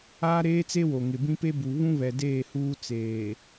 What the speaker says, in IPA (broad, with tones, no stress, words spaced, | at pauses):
aː˦ɾeː˦t͡se˦ wo˨ŋɪ˨bĩ˦pe˦ bu˨ βũ˦ βɛ˨deː˦˨ huː˦ t͡seː˨